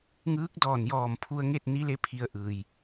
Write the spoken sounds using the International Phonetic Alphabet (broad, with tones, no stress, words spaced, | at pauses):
ŋɯː˧˥k̚dɔː˧˩n jɔː˧˩mpʰu˧ə̯ŋe˥˨t̚ ni˧˥le˧˥ pʰi˧ə̯ʔɯː˩j